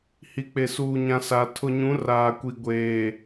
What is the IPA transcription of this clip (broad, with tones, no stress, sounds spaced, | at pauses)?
h i˨ k͡p e˨ s uː˨ ɲ ã˨ s a˨ tʰ ʊ˨ ɲ ũ˨˦ r aː˨ kʷ i˨ ɡʷ eː˨